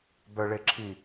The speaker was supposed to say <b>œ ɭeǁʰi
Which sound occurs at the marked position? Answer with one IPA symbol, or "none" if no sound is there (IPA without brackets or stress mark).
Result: b